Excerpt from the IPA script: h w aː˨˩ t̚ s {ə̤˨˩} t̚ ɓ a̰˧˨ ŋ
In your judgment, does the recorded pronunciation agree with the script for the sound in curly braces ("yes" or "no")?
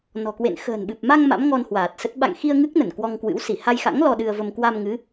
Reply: no